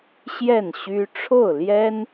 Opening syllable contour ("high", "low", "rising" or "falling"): falling